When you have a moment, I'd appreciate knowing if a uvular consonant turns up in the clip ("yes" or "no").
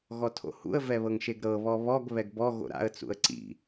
no